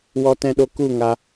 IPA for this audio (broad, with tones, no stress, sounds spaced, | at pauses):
w ɔ˧ t ɛ̃˧ ɗ o˧ k u˦˨ ŋ a˧